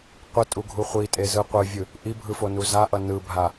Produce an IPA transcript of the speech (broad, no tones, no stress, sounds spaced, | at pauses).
qʷ ɯ tʼ u ɡʱ u χʷ i tʼ e z ɯ qʷ ɯ vʲ ɯ | ʔ i bʱ ɯ f o n u z a ʔ ʌ n ɯ bʱ a